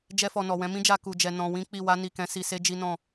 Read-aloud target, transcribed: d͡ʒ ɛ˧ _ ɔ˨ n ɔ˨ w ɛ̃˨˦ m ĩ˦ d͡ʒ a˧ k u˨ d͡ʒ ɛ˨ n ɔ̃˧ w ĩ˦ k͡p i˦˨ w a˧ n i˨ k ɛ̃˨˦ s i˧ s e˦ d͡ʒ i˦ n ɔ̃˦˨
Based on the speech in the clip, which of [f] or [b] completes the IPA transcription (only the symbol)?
f